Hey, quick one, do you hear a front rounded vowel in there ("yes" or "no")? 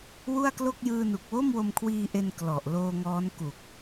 no